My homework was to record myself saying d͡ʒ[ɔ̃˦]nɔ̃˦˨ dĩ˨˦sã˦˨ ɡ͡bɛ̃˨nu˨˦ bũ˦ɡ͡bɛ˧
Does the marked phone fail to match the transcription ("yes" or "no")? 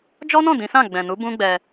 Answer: yes